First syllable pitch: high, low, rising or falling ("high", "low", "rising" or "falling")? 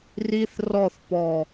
high